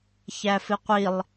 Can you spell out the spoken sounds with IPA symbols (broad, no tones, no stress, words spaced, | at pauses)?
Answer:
çæfɪqʷilˠ